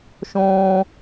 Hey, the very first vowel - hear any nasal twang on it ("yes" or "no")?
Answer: yes